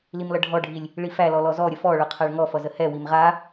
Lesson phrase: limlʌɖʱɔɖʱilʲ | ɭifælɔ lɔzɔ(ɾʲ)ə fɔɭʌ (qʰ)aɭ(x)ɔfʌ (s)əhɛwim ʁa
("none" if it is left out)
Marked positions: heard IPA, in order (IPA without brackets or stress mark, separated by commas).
ɾʲ, qʰ, ŋ, z